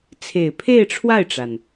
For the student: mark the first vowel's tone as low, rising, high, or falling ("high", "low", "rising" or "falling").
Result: low